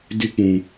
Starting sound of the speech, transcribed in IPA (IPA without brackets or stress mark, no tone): d